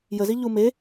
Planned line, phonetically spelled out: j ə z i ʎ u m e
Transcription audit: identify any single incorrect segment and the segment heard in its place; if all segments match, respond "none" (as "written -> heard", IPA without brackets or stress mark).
none